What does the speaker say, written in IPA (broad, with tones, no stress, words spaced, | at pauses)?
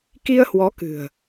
ki˧ə̯hwɔ˨˦ kɨ̤˨˩ə̯